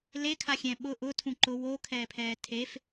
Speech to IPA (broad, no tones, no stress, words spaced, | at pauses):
lekʰaxʲɛ̃ ɓʊ ʔʊtʰũ ǃʊ wokʰɛːpʰɛː tʰef